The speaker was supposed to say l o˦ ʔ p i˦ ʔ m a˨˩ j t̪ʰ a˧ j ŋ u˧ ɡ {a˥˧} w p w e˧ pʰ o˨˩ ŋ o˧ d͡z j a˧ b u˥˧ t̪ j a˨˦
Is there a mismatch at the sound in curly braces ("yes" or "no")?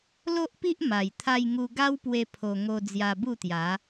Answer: yes